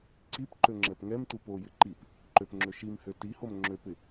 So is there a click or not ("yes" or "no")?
yes